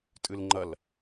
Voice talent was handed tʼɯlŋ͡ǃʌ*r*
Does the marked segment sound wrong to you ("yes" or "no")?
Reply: yes